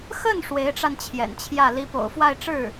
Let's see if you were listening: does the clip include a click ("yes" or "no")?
no